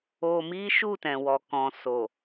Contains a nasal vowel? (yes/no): yes